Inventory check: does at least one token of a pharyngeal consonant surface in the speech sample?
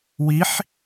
yes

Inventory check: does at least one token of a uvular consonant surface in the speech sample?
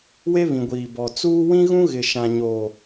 no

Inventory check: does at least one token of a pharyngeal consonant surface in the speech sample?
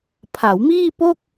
no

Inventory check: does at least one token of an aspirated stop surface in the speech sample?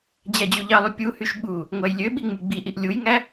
no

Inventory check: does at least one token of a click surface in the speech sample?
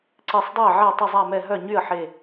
yes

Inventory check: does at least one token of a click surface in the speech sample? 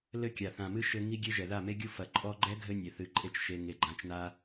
yes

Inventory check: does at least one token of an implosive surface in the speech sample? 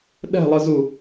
yes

